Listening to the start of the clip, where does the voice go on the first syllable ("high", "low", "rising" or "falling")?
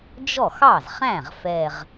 falling